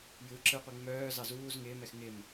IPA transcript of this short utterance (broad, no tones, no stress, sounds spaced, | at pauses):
j ɯ ǁ ɯ qʷ ɯ ŋ͡m œː z ɑ z uː z ŋ ɪː m ɛ x ŋ ɪ m